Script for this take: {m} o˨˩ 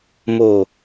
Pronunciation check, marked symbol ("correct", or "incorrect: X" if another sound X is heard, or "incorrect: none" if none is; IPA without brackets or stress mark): correct